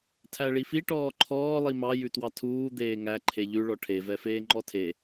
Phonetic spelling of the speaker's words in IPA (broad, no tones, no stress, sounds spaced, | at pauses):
tʰ æ ɭ i f i ʈ ɔː ǃʰ ɔː lˠ i m ɑ j ʉ t w ɑ tʰ uː d̪ eː ŋ æ ǃʰ e ʎ ʉ ɭ ɔ ʈʰ e v ɛ f eː ŋ͡ǃ ɔ tʰ e